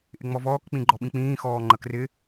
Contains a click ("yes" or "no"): yes